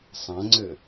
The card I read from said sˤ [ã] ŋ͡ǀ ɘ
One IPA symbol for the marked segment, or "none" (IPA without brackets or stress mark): ã